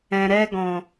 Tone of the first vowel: low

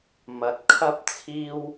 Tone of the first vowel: low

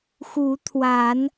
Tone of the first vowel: rising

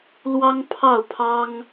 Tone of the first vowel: high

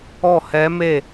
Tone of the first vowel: falling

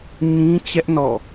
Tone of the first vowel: high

